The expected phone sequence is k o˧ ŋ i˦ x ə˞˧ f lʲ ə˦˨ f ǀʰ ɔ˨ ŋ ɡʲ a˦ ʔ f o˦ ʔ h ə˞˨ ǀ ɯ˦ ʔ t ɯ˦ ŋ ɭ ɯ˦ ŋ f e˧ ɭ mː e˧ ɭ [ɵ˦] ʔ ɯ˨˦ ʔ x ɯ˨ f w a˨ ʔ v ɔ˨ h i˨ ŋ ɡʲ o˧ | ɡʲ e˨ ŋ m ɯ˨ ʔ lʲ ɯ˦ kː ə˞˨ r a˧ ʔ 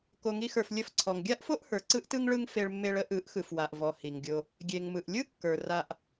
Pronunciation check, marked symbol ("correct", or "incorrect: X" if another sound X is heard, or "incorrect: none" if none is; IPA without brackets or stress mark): incorrect: ə˦